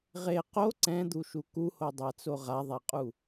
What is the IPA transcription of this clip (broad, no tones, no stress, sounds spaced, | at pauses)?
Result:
ʁ e q o ǀ ɛ̃ d̪ u ʃ u k u h o dˤ a t͡s o ʁ a ðˤ a qʼ u